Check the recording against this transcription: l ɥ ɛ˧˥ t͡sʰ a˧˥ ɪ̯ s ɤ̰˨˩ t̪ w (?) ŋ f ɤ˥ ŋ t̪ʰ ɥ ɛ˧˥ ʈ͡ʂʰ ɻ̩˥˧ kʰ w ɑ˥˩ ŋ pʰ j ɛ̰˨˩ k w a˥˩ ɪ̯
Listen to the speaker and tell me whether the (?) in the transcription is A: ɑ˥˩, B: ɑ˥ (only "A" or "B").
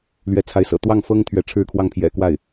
A